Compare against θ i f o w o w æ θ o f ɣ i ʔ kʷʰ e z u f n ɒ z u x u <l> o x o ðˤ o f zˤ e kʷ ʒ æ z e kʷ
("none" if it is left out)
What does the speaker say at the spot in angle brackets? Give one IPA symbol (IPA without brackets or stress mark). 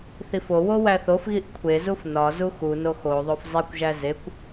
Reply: n